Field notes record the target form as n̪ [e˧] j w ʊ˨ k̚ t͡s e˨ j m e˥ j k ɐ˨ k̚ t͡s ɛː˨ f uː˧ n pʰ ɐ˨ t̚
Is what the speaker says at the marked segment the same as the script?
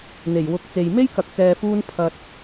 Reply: no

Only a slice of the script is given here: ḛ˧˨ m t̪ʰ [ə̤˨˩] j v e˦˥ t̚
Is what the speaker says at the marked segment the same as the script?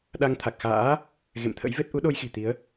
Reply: no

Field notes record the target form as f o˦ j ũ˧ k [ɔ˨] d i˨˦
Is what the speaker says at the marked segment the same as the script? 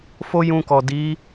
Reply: yes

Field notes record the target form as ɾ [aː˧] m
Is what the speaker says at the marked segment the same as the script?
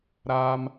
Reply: yes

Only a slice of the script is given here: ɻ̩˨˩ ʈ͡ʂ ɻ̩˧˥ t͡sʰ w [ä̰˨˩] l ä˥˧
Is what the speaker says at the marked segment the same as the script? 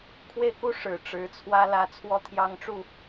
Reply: no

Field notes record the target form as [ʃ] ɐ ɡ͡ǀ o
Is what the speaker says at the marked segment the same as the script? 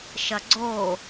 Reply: yes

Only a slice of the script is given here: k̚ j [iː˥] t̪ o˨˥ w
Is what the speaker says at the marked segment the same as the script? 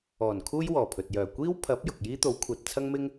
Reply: yes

